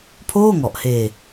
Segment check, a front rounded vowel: absent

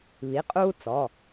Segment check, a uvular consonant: present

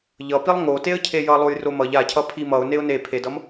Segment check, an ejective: absent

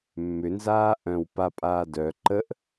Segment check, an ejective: present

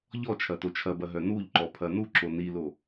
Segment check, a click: present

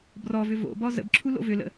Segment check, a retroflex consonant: absent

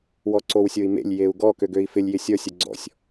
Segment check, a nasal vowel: absent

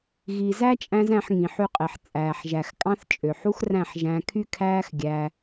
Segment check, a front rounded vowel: present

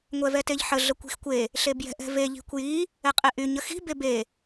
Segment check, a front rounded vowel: present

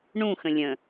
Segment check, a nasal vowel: present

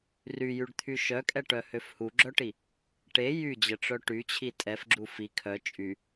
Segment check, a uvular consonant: absent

